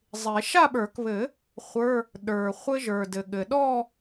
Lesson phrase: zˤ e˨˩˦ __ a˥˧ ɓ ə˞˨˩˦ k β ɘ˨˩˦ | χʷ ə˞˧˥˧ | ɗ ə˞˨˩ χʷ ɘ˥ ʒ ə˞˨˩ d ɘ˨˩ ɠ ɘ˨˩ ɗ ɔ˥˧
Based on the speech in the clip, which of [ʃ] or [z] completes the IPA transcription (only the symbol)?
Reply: ʃ